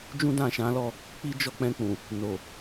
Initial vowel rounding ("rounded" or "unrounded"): rounded